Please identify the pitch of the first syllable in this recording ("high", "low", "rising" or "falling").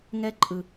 high